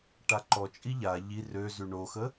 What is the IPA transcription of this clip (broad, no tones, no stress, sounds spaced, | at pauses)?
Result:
ʈ a ǃ ɔ t͡ʃʼ i ʎ a ʎ i r ø z y ɳ o x ə